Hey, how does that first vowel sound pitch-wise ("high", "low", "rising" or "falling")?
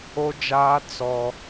high